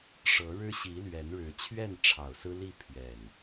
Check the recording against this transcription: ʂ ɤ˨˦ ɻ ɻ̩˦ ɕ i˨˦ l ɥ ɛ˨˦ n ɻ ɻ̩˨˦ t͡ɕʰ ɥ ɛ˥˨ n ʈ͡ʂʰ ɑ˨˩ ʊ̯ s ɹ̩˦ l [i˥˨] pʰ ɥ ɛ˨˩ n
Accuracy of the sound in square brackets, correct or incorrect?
correct